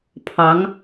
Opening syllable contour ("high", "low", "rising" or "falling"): rising